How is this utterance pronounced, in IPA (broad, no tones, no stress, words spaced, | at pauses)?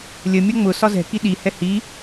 lʲəmʲɔ ŋ͡mʊ sɒzɛ̤ki ɗihɛ hi